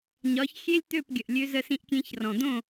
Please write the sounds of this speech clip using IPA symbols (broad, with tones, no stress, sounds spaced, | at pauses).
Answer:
ɲ ɒ˨˦ ç xʲ e˦ lʲ t̪ ø˦˨ p ɡʲ ə˨ ʔ lʲ ø˧ z ə˧ s ĩ˧ ʔ kʲ ẽ˧ ç r ɔ̃˨ d̪ õ˦˨